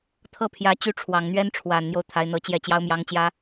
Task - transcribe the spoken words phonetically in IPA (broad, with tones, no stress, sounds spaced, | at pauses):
t̪ʰ ɤ˥˩ pʰ j ä˧˥ t͡ɕ y˧˥ ʈ͡ʂʰ w ɑ˨˩ ŋ n̪ ɥ ɛ˥ n ʈ͡ʂʰ w a˨˩ n n̪ j o˦ ʊ̯ t̪ʰ a˧˥ ɪ̯ n̪ ɤ˧˥ t͡ɕ j ɛ˥˩ t͡ɕ j ɑ˥ ʊ̯ m j ɑ˧˥ ŋ t͡ɕ j ä˧˥